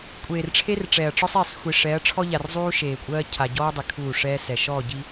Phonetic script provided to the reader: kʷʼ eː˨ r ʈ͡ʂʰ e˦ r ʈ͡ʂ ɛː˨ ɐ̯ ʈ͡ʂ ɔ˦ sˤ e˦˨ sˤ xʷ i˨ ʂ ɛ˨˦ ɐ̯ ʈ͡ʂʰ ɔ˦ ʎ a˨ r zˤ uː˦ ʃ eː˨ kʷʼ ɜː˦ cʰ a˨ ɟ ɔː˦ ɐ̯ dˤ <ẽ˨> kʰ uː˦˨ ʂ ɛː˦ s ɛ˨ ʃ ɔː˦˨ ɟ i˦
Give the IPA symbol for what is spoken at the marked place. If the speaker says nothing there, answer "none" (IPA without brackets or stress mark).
e˨